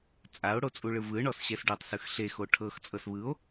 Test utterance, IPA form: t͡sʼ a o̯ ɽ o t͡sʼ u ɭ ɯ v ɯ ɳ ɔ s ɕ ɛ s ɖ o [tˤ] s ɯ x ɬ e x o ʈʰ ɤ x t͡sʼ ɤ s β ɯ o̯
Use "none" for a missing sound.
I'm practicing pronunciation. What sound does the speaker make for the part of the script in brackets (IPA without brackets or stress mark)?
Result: tˤ